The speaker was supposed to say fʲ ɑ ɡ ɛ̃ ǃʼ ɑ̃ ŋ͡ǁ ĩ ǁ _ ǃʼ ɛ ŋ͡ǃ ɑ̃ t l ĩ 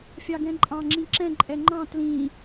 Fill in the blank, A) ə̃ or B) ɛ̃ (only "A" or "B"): B